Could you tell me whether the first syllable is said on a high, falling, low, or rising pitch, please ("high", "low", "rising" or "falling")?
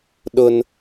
high